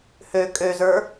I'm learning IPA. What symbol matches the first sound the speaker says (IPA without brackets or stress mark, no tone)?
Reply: h